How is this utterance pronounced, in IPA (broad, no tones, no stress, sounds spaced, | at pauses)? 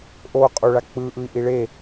ʔ o qʼ u ɭ a k͡p ɯ ʔ ɯ i̯ ʔ i ɭ e